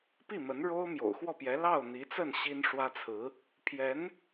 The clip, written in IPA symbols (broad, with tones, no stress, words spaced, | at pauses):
pi˥˩mə˧˥nɻo˥ʊ̯ mjo̰˨˩ʊ̯xwɔ˥˩pjɛ˧˥ lɑ˥˩ʊ̯ n̪i˧˥t͡sə˥˩n ɕi˥nʂwä˥t͡sʰɹ̩˧˥ | pʰjɛ˧˥n